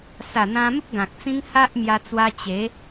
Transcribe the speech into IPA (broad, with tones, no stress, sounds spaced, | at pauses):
s a˨˩ n̪ ã˧ m ə˦ p̚ ɡ ã˨ k̚ t͡s ĩ˦ ŋ h a˦ ʔ m j a˧ t͡s w a˧ t͡ɕ e˨˦